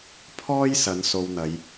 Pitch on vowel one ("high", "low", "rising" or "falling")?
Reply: high